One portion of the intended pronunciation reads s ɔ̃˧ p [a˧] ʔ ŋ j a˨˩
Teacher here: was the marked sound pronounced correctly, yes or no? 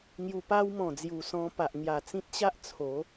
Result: no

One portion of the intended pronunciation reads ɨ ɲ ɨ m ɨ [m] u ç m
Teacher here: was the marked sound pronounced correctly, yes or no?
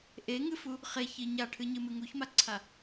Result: no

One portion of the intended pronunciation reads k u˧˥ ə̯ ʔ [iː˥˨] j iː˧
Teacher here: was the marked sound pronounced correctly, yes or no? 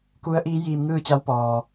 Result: no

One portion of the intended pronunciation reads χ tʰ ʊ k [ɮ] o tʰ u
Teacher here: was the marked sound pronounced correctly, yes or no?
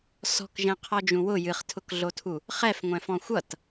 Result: yes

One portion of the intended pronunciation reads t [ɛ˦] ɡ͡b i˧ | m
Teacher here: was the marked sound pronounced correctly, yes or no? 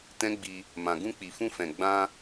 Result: no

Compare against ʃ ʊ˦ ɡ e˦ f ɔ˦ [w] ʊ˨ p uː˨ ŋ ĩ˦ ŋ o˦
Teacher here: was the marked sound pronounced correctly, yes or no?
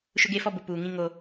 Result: no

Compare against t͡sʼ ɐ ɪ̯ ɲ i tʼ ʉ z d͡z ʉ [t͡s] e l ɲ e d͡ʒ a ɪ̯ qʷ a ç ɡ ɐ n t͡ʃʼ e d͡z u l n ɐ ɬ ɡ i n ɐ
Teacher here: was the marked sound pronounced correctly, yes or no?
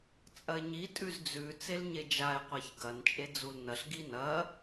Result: yes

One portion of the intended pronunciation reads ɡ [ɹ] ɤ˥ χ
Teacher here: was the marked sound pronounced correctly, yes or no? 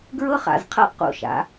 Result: yes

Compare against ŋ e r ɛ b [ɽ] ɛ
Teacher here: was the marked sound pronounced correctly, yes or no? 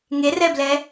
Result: no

